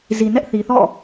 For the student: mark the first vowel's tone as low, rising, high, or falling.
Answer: low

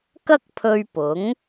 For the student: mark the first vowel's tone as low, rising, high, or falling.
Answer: high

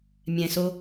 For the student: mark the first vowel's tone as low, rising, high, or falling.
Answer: low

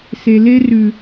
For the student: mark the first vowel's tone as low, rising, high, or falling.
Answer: low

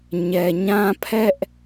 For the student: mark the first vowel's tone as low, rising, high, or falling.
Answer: low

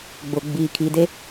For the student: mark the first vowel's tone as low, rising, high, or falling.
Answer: low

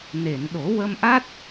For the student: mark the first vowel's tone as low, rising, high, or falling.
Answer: low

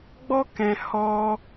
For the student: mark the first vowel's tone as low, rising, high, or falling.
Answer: high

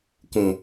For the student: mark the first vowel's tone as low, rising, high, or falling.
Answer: low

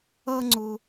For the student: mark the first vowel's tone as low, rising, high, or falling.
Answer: low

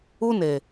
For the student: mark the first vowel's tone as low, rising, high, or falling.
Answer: high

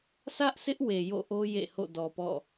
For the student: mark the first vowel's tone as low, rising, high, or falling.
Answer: high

